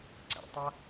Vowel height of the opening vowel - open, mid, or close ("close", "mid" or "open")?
open